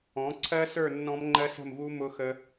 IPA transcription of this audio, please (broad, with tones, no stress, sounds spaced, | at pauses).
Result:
ɔ̃˩˥ ǀʰ ɜ˦˥ s ə˞˥˨ nː ɔ̃˦˥ m ŋ͡ǃ ɜ˦˥ s ə̤˥˨ m v u˦˥ m ʊ˦˥ x ə˦˥